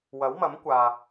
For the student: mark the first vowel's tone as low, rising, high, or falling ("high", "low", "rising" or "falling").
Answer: rising